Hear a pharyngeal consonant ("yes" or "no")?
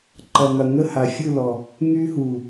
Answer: no